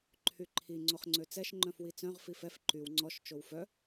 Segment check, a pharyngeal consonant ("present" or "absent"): absent